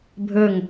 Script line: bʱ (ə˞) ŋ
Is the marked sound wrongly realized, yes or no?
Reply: no